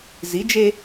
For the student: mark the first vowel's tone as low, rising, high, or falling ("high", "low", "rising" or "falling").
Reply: rising